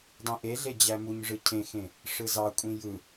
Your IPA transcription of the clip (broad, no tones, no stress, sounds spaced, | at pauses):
dˤ ĩ ʔ e ɮ e d͡ʑ æ m u ɲ ʐ ɯ cʰ ẽ x ẽ | ʂ ɯ z ɑ kʷʼ ĩ j ɯ